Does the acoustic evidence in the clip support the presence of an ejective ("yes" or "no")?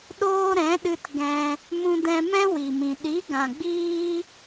no